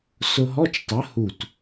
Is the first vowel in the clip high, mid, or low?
high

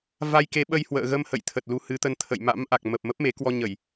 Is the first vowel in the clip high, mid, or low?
low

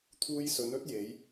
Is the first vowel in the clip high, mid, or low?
high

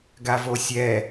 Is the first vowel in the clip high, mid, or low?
low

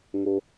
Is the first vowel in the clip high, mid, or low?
mid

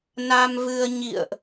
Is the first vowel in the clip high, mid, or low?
low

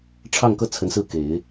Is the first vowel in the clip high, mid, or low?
low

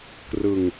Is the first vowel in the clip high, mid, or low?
high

